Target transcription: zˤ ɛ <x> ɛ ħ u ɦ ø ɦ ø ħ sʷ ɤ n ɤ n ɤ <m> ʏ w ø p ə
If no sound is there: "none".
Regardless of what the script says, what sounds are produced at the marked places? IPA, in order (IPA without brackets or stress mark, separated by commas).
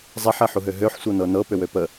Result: ħ, p